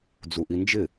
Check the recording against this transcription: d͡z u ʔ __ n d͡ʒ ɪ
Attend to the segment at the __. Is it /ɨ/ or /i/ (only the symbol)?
i